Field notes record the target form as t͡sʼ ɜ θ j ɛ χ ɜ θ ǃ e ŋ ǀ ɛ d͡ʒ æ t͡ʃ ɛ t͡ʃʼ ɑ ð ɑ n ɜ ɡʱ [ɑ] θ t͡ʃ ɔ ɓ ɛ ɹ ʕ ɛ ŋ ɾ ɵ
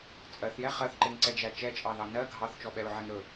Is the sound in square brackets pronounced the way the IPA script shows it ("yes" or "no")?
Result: yes